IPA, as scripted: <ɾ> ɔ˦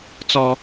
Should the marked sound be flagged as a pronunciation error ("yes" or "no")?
yes